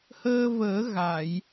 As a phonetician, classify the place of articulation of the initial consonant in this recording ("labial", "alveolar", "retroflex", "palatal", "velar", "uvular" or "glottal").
glottal